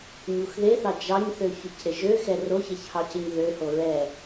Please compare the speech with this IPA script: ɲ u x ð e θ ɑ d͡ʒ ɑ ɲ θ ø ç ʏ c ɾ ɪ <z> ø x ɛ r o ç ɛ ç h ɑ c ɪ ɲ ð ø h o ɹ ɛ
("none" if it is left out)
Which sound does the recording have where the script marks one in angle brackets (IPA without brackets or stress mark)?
ʒ